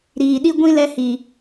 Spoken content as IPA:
ɾ iː˨ ɗ i˧ ɡʷ ĩ˦ l ɛ˧ h i˨

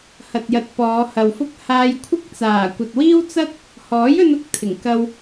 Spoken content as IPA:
h ɐ˨ t̚ j ɐ˨ t̚ p ɔː˨˧ h ɐ˨ w f ʊ˥ k̚ h aː˧ j kʷʰ ɪ˥ k̚ t͡s aː˨˩ kʷ ɐ˨ t̚ w iː˥ w t͡s ɐ˥ t̚ | h ɔː˨˥ j ɵ˧ n ʊ˨˥ k̚ t̪ʰ ɪ˨˩ ŋ k ɐ˧ w

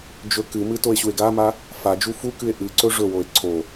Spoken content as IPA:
d͡ʒ ɵ k ɨ m ɨ t o e̯ ɕ u e̯ ɡ a m a | f a d͡ʒ u f u k ɨ e̯ ʔ ɨ ǀ ɵ ʐ ɵ w o e̯ ǀʰ o

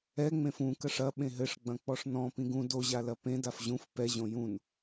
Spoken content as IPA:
ɛ ŋ͡m ẽ f ũ k ɐ ʂ ɐ ɓ ẽ ɦ ɘ ʂ ɡ͡b ɐ̃ k͡p ɔ ʂ n ɔ̃ p ĩ ɡ ũ d o ʑ a l ɐ p ẽ d a f ʑ ũ f p ɛ ʑ õ j ũ n

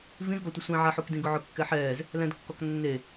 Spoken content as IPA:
v ĩ z ɡ ɔ tʷ ɪ sʷ ĩ ʕ a ħ u k d ĩ ɡ ʊ ʕ ʊ kː ɛ ħ ɛː z | l ɛ̃ d kː ɔ k nː e

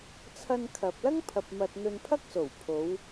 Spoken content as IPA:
t͡sʰ ɐ˧ n kʰ ɐ˨ p̚ l ɐ˥ ŋ pʰ ɐ˧ p̚ m ɐ˧ t̚ n̪ ɵ˧ n pʰ ɐ˥ k̚ s o˨˩ w pʰ o˨˧ w

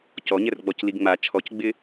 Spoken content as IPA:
c ɔ ɲ ɛ r ɡ͡b ɔ c l i ɡ ŋ͡m a t͡ʃʰ ɔ c ɡ͡b ɪ

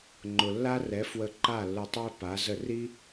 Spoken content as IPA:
ŋ͡ǃ ʊ˩ lː a˥ r ɛ˩˥ f w ə˧ ǃ a˥˩ lː ʊ˧ tˤ ø˥ p a˩˥ z ə˥˩ r i˥

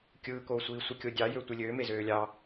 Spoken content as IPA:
kʲ ɯː k oː sʷ iː sʷ i kʲ o dʲ ɑ j ø tʷ i lʲ øː m e z øː lʲ ɑ

